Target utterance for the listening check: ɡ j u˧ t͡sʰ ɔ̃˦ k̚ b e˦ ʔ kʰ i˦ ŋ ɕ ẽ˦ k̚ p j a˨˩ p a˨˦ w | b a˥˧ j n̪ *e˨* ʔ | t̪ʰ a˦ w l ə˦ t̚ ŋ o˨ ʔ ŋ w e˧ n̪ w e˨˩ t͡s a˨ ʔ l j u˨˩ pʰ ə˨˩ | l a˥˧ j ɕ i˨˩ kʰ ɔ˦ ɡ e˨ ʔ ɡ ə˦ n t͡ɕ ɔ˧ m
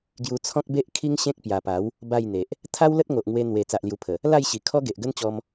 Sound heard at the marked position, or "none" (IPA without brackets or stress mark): e˨